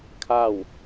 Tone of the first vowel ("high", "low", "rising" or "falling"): falling